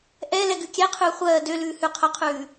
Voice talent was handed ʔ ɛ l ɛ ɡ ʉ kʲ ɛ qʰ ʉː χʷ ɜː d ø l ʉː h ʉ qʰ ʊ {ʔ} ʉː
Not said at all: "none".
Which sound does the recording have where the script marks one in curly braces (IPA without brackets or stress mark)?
qʰ